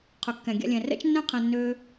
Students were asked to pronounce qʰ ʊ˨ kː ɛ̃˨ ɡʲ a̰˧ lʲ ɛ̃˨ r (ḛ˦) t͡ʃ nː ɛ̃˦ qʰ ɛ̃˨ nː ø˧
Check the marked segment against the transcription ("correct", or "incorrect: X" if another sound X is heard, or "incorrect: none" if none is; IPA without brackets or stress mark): incorrect: ɛ̰˦